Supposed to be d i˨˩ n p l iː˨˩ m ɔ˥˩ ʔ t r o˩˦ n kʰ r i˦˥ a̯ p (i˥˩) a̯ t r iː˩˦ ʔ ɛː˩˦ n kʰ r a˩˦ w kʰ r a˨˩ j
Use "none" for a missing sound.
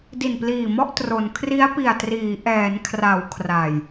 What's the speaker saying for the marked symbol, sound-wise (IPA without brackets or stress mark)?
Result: i˨˩